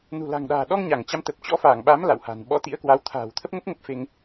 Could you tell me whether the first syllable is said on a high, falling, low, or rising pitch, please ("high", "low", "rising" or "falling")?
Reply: low